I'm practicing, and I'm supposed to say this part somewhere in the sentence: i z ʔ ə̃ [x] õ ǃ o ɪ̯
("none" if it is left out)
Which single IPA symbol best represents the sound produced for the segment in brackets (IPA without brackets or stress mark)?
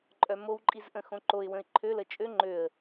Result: x